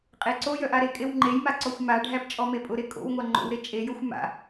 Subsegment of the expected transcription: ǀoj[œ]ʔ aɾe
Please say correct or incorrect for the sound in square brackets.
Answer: correct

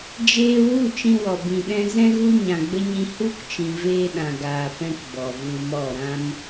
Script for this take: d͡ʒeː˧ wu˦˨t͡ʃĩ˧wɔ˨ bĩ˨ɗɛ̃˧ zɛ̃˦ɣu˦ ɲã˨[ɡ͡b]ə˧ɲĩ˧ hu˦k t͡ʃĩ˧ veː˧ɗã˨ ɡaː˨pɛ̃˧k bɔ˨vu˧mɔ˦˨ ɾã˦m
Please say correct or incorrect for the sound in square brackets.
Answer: correct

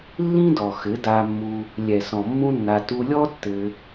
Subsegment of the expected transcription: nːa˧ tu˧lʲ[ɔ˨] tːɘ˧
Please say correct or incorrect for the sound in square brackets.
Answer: incorrect: ɔ˦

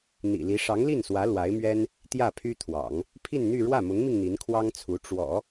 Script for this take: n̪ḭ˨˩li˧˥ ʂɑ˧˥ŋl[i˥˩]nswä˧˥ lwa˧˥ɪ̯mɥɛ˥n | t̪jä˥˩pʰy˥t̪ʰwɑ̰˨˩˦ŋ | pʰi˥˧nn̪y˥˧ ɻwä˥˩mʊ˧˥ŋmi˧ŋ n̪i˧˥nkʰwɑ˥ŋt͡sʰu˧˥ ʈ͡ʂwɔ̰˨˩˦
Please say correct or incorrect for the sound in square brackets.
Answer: correct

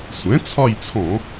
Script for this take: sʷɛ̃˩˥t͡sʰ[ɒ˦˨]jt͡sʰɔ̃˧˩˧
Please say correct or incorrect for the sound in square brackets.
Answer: correct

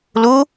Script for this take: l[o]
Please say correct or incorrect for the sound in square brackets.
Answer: incorrect: u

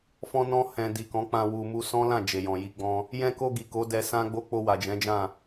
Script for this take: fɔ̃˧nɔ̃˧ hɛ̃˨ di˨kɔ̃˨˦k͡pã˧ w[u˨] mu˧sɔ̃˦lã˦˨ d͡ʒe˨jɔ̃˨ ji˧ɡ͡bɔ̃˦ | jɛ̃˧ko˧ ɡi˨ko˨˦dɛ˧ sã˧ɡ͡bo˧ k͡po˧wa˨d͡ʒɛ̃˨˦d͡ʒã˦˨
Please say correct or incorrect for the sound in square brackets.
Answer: correct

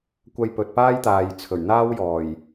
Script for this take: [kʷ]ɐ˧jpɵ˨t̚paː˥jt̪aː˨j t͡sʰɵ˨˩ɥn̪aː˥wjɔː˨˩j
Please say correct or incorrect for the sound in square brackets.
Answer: correct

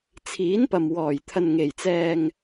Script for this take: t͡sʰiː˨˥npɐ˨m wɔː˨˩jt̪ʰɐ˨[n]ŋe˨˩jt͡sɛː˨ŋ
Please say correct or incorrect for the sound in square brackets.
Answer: correct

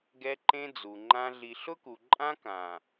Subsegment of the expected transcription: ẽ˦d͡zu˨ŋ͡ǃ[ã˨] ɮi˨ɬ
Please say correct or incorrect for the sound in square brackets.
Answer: incorrect: ã˦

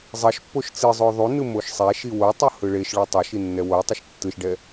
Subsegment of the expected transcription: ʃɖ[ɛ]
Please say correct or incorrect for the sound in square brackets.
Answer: correct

